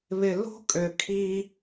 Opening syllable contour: low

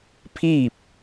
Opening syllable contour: falling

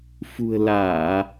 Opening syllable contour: low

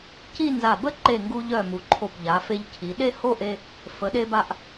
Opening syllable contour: falling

